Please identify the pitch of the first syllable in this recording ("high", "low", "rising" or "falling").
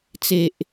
low